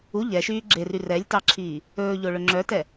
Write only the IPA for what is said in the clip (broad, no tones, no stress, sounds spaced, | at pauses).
u ʎ ɛ ʃ yː ɡ͡ǁ e r y r ɛ lʲ t ɑ ǁʰ iː | ɵː ʎ o ɭ ɵ ŋ͡ǁ œ t ɛ